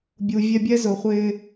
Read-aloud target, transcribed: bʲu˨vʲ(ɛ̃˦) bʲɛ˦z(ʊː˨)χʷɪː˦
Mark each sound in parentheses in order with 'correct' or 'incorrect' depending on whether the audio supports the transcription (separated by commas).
incorrect, correct